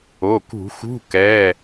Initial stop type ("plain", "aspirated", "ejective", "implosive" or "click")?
plain